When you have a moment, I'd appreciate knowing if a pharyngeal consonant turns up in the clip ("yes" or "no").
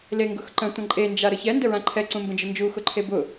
no